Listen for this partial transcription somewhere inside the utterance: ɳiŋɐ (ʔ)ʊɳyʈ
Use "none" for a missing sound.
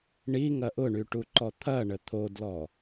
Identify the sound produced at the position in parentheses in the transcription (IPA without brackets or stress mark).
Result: ʔ